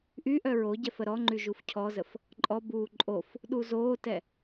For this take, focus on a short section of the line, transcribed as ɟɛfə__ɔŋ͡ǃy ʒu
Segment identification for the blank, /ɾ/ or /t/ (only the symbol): ɾ